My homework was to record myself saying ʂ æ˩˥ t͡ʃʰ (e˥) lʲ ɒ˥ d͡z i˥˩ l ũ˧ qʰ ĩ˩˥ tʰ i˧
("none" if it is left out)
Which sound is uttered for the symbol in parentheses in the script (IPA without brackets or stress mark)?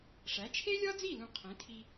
e˥